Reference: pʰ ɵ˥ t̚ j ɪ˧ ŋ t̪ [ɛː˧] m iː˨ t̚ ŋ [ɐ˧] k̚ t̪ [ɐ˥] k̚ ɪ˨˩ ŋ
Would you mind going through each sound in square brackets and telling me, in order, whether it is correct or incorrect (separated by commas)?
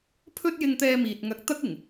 correct, correct, correct